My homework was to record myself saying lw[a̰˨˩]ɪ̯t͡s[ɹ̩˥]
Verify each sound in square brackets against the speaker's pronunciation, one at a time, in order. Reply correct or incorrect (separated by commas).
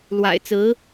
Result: correct, incorrect